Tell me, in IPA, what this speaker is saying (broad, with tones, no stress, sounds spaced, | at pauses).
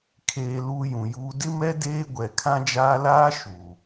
kʰ eː˨ l uː˦ j ũ˨ j uː˦ d ɪ˦ m ɛ˦ d eː˦ ɡʷ ɛ˨ kʰ ã˦ d͡ʒ aː˦ l aː˦ ʃ uː˨